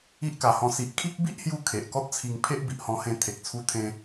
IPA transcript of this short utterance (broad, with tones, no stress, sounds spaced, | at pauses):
i˦ ʔ k a˨˩ h ɔ̃˧ s i˨ ʔ kʰ i˦ k̚ b i˦ ʔ h j u˧ kʰ e˨ ʔ k ɔ˦ t̚ t͡sʰ i˧ ŋ pʰ e˦ ʔ b i˨ ʔ h ɔ̃˧ h ẽ˧ t̪ʰ e˨ k̚ t͡sʰ u˧ t̪ʰ ẽ˧